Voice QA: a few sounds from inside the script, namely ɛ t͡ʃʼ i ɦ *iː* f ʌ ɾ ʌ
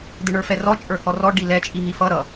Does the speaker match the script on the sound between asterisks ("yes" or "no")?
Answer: no